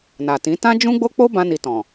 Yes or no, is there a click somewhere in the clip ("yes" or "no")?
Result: no